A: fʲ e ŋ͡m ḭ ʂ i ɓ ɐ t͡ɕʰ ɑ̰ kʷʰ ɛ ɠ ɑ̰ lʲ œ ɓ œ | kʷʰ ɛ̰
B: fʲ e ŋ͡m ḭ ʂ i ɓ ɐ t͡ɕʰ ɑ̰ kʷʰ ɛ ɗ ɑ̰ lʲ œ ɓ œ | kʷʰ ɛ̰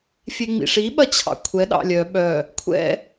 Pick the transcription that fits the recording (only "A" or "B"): B